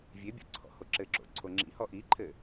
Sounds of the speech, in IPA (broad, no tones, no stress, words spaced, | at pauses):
vʲebʲo̰ ǀʰɔ̰hoǁɘǁo̰ ǀʰoŋ͡ǁḭhɔ ʔiǃʰɘ